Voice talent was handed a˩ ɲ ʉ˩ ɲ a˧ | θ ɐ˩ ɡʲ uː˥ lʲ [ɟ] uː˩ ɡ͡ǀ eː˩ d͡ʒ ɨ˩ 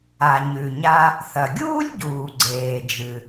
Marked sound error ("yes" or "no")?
no